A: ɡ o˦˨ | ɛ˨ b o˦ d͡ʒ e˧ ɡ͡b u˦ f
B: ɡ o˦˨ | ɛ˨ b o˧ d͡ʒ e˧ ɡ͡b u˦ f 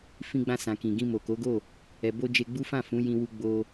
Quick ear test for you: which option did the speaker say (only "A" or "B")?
B